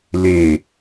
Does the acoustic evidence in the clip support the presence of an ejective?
no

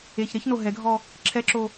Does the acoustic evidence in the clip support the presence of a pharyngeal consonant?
no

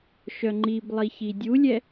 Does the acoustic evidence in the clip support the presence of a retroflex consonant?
no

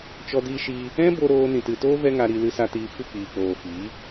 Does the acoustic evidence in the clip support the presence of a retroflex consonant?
no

